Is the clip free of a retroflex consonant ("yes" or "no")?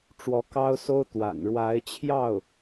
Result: no